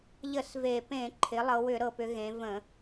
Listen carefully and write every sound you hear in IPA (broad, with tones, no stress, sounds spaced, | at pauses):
ʎ ə˧˩˧ s v e˨˩ p ẽ˧˩˧ ǃʰ ɪ˩˧ lˠ ɤ˩˧ w ʏ˧˩˧ ɾ ɤ˨˩ p ʏ˩˧ ɣ ẽ˩˧ v ə̃˧˩˧